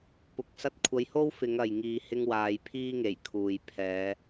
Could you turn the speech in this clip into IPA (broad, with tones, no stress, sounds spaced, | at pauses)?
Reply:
p ʊ˨˥ k̚ s ɐ˧ t̚ kʷʰ ɐ˨˧ j h o˥ w f ɪ˨˧ ŋ ɐ˨ j ŋ iː˨ h ɪ˧ ŋ w aː˨˧ j pʰ iː˥ ŋ e˨˩ j kʰ uː˨ j pʰ ɛː˨˧